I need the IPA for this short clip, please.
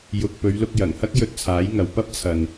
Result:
j ʊ˨ k̚ p ɵ˨˧ ɥ l ʊ˧ k̚ j ɐ˨˩ ŋ h ɐ˥ k̚ j ɵ˧ t̚ t͡sʰ aː˨˥ j ŋ ɐ˨ w p ɐ˥ p̚ t͡sʰ ɐ˨ n

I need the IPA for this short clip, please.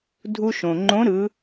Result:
dʱ u˧ ʃ õ˩ ŋ͡ǃ õ˧˥ ɾ ɯ˧˥

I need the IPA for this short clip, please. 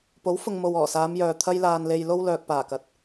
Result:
p o˨˥ w f ʊ˨ ŋ m o˨ w ɔː˨˩ s aː˨˧ m j œː˨ t̪ʰ ɐ˧ j l aː˨ n l e˨ j l o˥ w l œː˨ k̚ p aː˨˩ k ɐ˨˥ t̚

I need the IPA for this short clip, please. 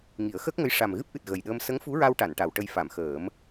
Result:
ŋ i˨˩˦ ə̯ x əː˦˥ k̚ ŋ ə˧˥ j ʂ a˨˩ m ɣ ɨ˦˥ p̚ ʔ ɨ˨˩ t̚ ɣ ə˨˩ j ɗ əː˧ m s ə˧˥ ŋ f u˧˥ ɹ a˧ w ʈ a˨˩˨ n ʈ a˨˩˨ w ʈ ə˧ j f a˨˩˨ m x əː˨˩˦ m

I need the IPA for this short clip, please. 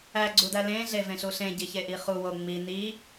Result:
æ ɡ͡ǀ u d æ l ẽ ɮ e v ẽ ɬ u ɬ ẽ ɟ i ç e ʔ i χ u w o ŋ͡m i n i

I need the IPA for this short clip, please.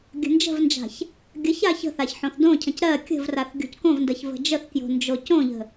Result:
ɡʲ ə̤ n d͡ʒ ə̤ v n d͡ʒ a̤ ç | ɡʲ ə ç a ç ə̤ θ a ç ħ õ θ d õ cʰ ə̃ c ɾ ɜ kʲ ə̤ v r a θ ɡʲ o̤ c k õ v n d ɜ ç v ə̤ d͡ʒ ə θ k j o̤ n d͡ʒ o c õ ʎ ə̤

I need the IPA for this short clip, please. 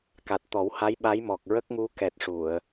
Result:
k a˨˩ t̚ t̪ ɔ˨˩˦ w h a˧˥ j ɓ a˧˥ j m ɔ˨˩ k̚ ɹ ə˦˥ k̚ ŋ u˧˥ k ɛ˨˩ t̚ ʂ u˨˩˨ ə̯

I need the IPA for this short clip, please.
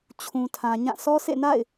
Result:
t͡ɕʰ ũ˨ tʰ ã˨ ɲ ã˦˨ sʰ ɔ˦ s ḛ˦˨ n a̰˦˨ ɪ̯

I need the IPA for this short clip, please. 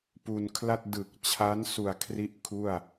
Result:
p u˧ n kʰ l a˥˩ t̚ d ɯ˨˩ k̚ t͡ɕʰ a˦˥ n s u˨˩ a̯ kʰ r i˥˩ ʔ kʰ u˥˩ a̯

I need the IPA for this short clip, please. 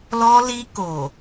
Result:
l ɔ˧ l i˧ k o˨

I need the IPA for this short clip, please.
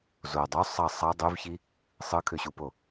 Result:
z o dˤ y sˤ ɑ sˤ ɑ dˤ y v ç i | sˤ ɯ kʰ ø ɕ u p o

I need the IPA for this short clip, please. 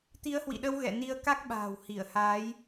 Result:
t̪ i˨˦ ə̯ h w ḭ˧˨ ɗ ə˧ w ɣ ɛ̰˧˨ n i˧ ə̯ k a˦˥ k̚ ɓ a̤ː˨˩ w h i˧˩ ə̯ h aː˨˦ j

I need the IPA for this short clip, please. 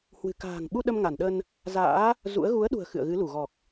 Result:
h w ɨ̤˨˩ k a̤ː˨˩ ŋ ɓ u˧ ɗ ə˧ m ŋ a˧˩ n ɗ ə˧ n | z a̰ː˧˥ | z ṵ˧˥ ə̯ ɣ u˨˦ ə̯ ɗ ṳ˨˩ ə̯ x ɨ̰˧˨ ə̯ ɣ ɨ˨˦ l u˧˩ ɣ ɔ˨˩ k̚

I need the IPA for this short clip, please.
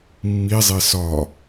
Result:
mː i zˤ e s ɒ

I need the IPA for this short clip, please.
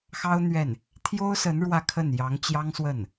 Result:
x ɑ˥ ʊ̯ n̪ ɥ ɛ˥˩ n | t̪ʰ j o˥ ʊ̯ s ə˧˥ n ɻ w ä˥˧ kʰ ə˥˩ n j ɑ˧˥ ŋ t͡ɕ j ɑ˥ ŋ s w ə˥˩ n

